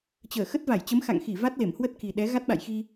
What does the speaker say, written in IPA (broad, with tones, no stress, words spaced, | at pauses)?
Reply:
t͡ɕəː˧˩xə˦˥t̚ va˧˩jt͡ɕə˨˦mxa̰˧˨ŋxi˧˩ va˦˥t̚ le˧˩mhwə˦˥t̚ki˨˩ɗɛ˨˦ ɣa˦˥t̚ɓa̰˧˨jxi˧